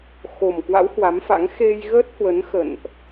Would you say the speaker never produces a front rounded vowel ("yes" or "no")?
yes